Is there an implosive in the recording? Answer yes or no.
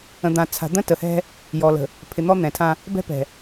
no